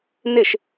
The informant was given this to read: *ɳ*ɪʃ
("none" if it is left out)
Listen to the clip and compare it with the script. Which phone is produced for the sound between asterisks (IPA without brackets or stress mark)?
n